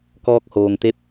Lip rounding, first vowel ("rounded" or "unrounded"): rounded